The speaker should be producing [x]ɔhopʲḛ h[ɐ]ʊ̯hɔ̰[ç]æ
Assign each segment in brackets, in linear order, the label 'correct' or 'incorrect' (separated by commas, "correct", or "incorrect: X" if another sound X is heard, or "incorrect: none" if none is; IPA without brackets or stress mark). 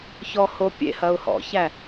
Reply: incorrect: ç, correct, correct